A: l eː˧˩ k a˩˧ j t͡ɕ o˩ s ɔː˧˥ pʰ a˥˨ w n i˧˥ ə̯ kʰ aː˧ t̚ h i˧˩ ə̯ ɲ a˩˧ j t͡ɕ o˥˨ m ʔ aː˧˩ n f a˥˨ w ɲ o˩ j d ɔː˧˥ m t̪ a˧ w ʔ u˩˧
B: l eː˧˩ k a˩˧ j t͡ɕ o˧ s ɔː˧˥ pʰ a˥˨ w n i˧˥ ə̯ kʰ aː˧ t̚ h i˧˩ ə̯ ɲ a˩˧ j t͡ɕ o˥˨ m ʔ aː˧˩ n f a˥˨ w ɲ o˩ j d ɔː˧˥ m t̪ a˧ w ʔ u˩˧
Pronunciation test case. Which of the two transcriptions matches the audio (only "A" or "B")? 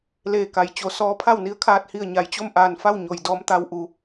A